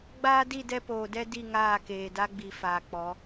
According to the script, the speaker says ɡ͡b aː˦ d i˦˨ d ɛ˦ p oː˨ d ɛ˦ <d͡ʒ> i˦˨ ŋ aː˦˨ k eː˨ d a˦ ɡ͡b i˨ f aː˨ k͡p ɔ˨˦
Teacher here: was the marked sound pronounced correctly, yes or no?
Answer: no